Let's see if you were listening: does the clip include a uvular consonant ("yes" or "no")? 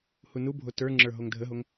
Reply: no